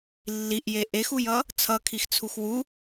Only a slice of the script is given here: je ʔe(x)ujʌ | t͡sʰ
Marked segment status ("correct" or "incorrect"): correct